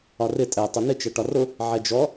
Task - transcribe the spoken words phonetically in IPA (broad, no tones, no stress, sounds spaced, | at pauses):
ɒ r ɪ tʼ ɛ tˤ ʊ n ɪ t͡ʃ ɛ ʈ ɒ r ʊ | ʕ ɛ d͡ʒ ɔ